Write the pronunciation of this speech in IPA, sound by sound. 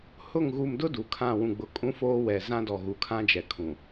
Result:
h ʊ˦˨ ŋ ɣ u˨ m d ʊ˦ d u˨ kʰ ã˦˨ w ũ˨ ɡ͡b ʊ˨ kʼ ũ˦ f oː˦ w ɛ˨ z ã˦ d ɔ˨ ɣ u˨ kʰ ã˦ d͡ʒ ɛ˨ kʰ ũ˨

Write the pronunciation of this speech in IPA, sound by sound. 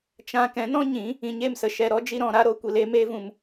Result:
t͡ʃ ã˧ k ɛ̃˨˦ n ɔ̃˦ ɲ ĩ˨˦ | ĩ˧ ɲ e˦˨ m s ə˧ ʃ ɛ˧ ɾ ɔ˦ d͡ʒ i˦ ɾ ɔ̃˧ ɾ a˦ ɾ o˦ kʷ i˧ l e˦ m e˦ v ũ˧ m

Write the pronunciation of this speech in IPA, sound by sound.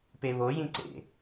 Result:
p e β o j ĩ ǀ ḛ

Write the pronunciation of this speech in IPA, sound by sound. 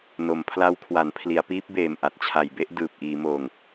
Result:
n o˩˦ m pʰ l a˦˥ w kʰ w a˩˦ n pʰ l i˩˦ a̯ p iː˦˥ p̚ b eː˨˩ m ʔ a˨˩ t̚ t͡ɕʰ a˨˩ j b e˥˩ ʔ d ɯː˨˩ p̚ ʔ iː˩˦ m oː˨˩ ŋ

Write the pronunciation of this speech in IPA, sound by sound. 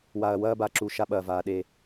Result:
w a˨ ɐ̯ w ɐː˦ b a˨ ǁ u˨ ʃ a˦ ɓ ɐː˨ v aː˨ ɗ e˦˨

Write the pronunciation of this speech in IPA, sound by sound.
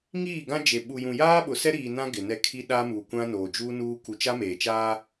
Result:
ŋ iː˦˨ ɡ ã˦ d͡ʒ e˨ ɓ u˨ j ũ˨ j aː˦ ɓ ʊ˨ s ɛ˦ ɾ iː˨ n ã˦ ɡ ɪ˨ n ɛ˦ kʰ i˦ ɗ a˦ m uː˨ kʷ ã˦ n oː˨ d͡ʒ uː˦ n uː˦ k u˨ t͡ʃ a˦ m eː˨ t͡ʃ aː˦

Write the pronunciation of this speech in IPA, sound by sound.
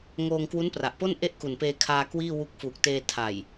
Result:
ŋ oː˧ ŋ k w u˦˥ n p r a˨˩ ʔ p o˥˩ n ʔ e˥˩ ʔ k u˨˩ n p eː˧ kʰ aː˧ k w iː˥˩ w u˦˥ k̚ f uː˨˩ k̚ t eː˧ tʰ a˨˩ j

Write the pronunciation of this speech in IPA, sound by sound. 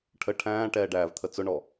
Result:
ʈʰ ə ʈʰ æ̃ː ʈ ɛː ɖ æː v t̪ʰ ə t͡s ʊ ɳ ɔ

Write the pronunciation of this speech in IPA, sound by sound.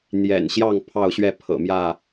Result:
n̪ j ɛ̰˨˩ n ɕ j ɑ˥˨ ŋ pʰ ɑ˥˨ ʊ̯ ɕ ɥ ɛ˥˨ pʰ ɤ̰˨˩ m j ä˥˨

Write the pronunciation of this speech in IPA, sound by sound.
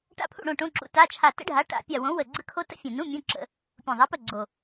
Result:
ʈ a̰˦˨ pʰ ṵ˦˨ ɽ õ˦˨ ʈ õ˧˥˧ ǁ ṵ˨˥ t a˧˥˧ t͡ʃʰ a˦˨ t ə̰˦˥ ɖʱ a˨˥ ʈ a̰˧˩˧ pʲ a˦˨ w õ˨˥ w ə˦˨ ɡ͡ǀ ə˦˥ kʰ o˦˥ t ə̰˦˥ fʲ ũ˨˩ n ũ˧˥˧ mʲ õ˧˥˧ ǁ ə̰˧˩˧ | pʲ ũ˨˩ ðˤ a˨˥ p ə˦˨ ɡ͡ǀ o˨˩

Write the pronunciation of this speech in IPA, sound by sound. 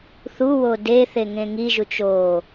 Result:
θ u w o d e θ e ŋ ẽ ŋ i ʒ u t͡ʃ o

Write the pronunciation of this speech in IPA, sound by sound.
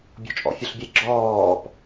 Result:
bʲ ɔ̤ t͡ʃʼ ɔ̰ fʲ ɔ ɬ bʲ e ɡ͡ǁ ɔː p

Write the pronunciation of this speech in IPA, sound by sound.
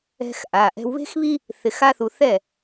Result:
ɛ̤˧ x ʔ a˩˧˩ ʔ ɛ̤˧ w β e̤˥ x β i˥ | θ ɪ˧ x a˥ θ u˧ θ ɛ˥˩

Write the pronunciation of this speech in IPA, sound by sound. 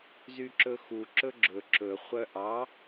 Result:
z y ǁ ɵ x u ǁ ɵ ɡ͡ǁ ɵ ǁ ɵ χʷ œ ʔ ɑ

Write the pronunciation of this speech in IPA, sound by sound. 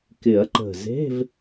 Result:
k ɪ˨˩˦ ɐ̯ ǃ ə̤˨˩ z e̤˧˥˧ v

